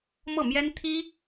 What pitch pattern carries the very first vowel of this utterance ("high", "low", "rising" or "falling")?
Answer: falling